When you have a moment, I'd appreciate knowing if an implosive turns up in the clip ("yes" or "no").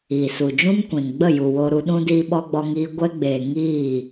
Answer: yes